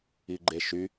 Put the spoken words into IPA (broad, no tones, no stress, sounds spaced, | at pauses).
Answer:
i ɡ͡ǃ e ʃ y